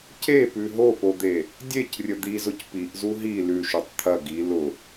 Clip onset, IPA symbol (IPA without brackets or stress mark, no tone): c